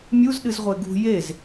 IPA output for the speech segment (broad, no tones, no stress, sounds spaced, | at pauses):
mʲ u z ɗ ɨ z ʁʷ e ɡ ṳ j e z